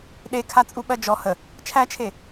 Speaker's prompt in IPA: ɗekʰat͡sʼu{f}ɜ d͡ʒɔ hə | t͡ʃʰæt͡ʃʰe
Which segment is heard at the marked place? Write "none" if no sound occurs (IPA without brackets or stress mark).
ɓ